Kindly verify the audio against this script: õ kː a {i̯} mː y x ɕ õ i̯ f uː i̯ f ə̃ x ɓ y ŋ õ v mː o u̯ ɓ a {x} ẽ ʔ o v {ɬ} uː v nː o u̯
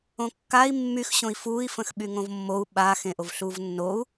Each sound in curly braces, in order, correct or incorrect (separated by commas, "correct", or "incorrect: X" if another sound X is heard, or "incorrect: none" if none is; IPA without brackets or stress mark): correct, correct, correct